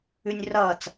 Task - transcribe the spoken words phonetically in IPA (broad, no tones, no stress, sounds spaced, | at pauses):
ʉ nʲ r ʌː t͡s